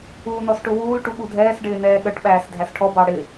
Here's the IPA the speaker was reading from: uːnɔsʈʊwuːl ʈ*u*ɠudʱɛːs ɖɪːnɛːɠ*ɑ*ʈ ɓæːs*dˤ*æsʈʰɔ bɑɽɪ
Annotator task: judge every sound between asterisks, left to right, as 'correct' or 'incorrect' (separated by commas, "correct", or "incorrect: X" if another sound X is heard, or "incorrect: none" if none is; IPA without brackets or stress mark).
correct, incorrect: ə, incorrect: dʱ